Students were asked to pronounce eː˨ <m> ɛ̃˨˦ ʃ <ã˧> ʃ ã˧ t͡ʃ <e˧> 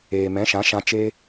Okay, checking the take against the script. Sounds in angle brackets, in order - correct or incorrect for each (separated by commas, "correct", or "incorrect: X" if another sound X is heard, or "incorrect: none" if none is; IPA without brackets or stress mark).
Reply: correct, incorrect: ã˨˦, incorrect: eː˧